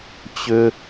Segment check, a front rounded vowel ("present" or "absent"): present